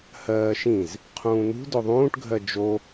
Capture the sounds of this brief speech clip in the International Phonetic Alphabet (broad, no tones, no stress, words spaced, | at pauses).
hɜːʃĩz | qʰũːnṳ dɵðˤũːʈɡʱɜ d͡ʒo